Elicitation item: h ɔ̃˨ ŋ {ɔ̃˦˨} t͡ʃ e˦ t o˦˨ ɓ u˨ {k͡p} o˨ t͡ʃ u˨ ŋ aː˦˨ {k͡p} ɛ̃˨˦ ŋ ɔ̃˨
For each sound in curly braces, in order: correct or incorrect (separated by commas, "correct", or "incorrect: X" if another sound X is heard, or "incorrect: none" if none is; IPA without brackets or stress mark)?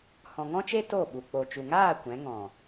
incorrect: ɔ̃˦, correct, incorrect: kʷ